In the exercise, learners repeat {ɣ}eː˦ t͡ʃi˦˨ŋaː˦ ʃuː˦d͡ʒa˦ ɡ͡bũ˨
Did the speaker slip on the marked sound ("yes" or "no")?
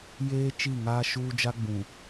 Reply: yes